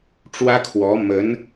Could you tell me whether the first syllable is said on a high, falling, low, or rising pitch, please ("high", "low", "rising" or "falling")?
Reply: high